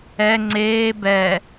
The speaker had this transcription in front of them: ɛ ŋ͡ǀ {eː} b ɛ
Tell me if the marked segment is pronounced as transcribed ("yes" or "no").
yes